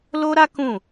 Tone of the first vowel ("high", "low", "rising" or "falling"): high